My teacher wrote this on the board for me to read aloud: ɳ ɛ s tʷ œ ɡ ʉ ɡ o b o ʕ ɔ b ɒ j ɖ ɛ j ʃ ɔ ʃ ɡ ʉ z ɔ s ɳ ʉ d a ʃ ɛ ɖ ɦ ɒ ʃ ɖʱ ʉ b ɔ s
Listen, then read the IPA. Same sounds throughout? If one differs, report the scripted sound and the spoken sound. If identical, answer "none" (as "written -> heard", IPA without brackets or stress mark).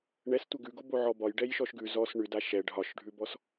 œ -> ɛ